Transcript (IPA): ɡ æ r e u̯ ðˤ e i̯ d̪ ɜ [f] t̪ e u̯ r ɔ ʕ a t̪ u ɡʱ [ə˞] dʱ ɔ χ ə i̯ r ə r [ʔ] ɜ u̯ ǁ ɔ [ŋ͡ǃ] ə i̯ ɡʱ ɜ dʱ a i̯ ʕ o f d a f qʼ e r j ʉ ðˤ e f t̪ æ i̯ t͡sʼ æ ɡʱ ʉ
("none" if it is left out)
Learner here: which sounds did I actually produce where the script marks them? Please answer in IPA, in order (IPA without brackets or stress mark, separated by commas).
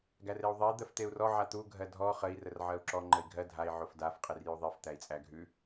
f, ɜ, ʕ, ŋ͡ǃ